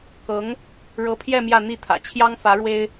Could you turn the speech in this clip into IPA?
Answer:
k ɤ˧˥ ŋ | ɻ ɤ˧˥ pʰ j ɛ˥˧ m j ä˥˧ n̪ i˥˩ t̪ʰ ä̰˨˩ t͡ɕʰ j ɑ˥ ŋ f ä˧˥ ɻ w e˥ ɪ̯

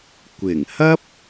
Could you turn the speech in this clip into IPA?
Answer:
kʷ ɪ˨˩ ŋ h ɐ˥ p̚

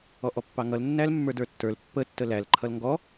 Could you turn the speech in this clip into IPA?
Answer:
ɔ ʔ ɔ pː ɑ ŋ ʌ l nː æ l mː ə˞ d ə˞ tː ə˞ l pː ə tː ə l æ l ǃʰ ʌ l ŋ ɡ ɔ

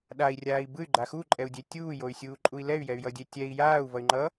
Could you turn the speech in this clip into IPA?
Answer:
ɗ a i̯ rʲ aː i̯ b ɯ y̯ ɡ͡ǃ a x u ǃʼ ɛ u̯ dʲ e tʲ uː j o y̯ sʲ uː ǃʼ u i̯ l ɛ y̯ j ɛ y̯ j ʌ dʲ e tʲ ɛ i̯ j aː u̯ v ʌ y̯ ŋ͡ǃ ʌ

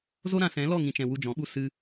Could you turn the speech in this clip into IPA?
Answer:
z o˦ ɾ ã˧ s ɛ̃˨˦ l ɔ˦˨ ŋ ĩ˨ t͡ʃ ɛ̃˨ w u˧ d͡ʒ ɔ̃˨˦ ɓ u˦ s ɨ˧

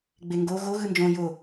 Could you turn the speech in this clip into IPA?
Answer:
ɡ͡b e ŋ ɡ o ɣ o ɣ ɯ n d͡ʒ õ j o

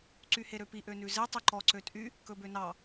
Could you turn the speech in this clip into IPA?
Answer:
ǀ y h e ɾ ø p i ʔ ø n ʉ z e tˤ ø ǃ ɔ ǀ ø tʼ y | k ɵ b ø n ɑ

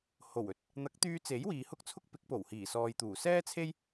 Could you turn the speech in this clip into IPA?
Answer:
h o˨˩ w ɵ˧ t̚ | n̪ ɐ˨˥ k̚ t̪ yː˧ t͡s e˨˥ j w iː˨ h ʊ˥ k̚ t͡sʰ ʊ˥ k̚ p ɪ˨˥ k̚ p o˨˩ w h iː˨˩ s ɔː˨ j t̪ uː˨˩ s ɛː˥ t͡sʰ e˥ j

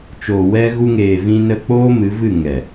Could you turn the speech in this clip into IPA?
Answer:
t͡ʃ oː˨ w ɛ˧ ɣ u˧ ŋ eː˨ v ĩ˧ n ə˧ k͡p oː˦ m ɨ˨˦ v ɨ˦˨ ŋ ɛ˨

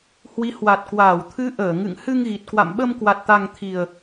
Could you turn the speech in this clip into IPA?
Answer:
h w i˨˦ h w a˨˩ t̚ k w aː˧˩ w t̪ʰ ɨ˨˦ ʔ əː˧˩ ŋ ɨ̰˧˨ ŋ h ɨ˧ ŋ ɣ i˨˩ t̚ k w a̰˧˨ m ɓ ə˧ m k w a˨˩ t̚ t̪ a˨˩ ŋ t̪ʰ i˨˩ ə̯

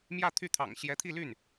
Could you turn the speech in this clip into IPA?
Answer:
m j ä˥˧ t̪ʰ y˥˩ t̪ʰ ɑ̰˨˩ ŋ ɕ j ɛ˧˥ t̪ʰ i˥˧ l y˥˩ n

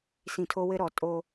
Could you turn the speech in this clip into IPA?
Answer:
s ĩ˨ tʰ o˦ w ɘ˦ ɾ ɔ˨ tʼ o˦

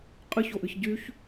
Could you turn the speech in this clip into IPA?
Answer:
qʼ ɨ ç o ʔ ɨ ç ɟ y ç

